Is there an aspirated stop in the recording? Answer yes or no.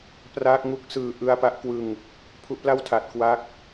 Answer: yes